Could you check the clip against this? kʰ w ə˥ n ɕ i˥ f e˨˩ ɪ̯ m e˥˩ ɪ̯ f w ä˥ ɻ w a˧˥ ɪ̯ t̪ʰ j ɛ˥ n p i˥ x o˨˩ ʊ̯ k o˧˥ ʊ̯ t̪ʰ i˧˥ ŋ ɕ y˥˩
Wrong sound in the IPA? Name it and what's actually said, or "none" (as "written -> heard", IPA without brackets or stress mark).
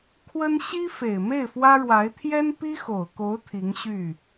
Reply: none